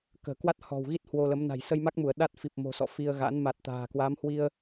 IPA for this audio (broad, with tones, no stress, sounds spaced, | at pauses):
k ə̤ː˨˩ k w a˦˥ t̚ h ɔ̤˨˩ w ɣ i˦˥ t̚ h w o˧ l ə˨˦ m n a̤˨˩ j s ə˧ j m a˦˥ k̚ m u˧˩ ə̯ ɗ a˦˥ t̚ f i˨˩ p̚ m o̤˨˩ s ɔ̰˧˨ f i˧ ə̯ ɣ a̰˧˥ n m a˨˩ t̚ t̪ a̤ː˨˩ k w a˨˦ m h w i˧ ə̯